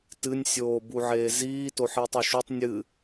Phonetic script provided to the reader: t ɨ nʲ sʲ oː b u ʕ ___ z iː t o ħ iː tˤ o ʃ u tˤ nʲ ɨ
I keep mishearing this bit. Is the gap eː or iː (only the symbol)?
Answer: eː